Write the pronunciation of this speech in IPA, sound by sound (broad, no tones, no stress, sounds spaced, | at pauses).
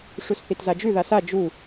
ʂ u s θ i t z a d͡ʒ ʉ ð a s a d͡ʒ u